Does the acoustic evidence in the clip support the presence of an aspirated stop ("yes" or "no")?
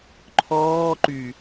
yes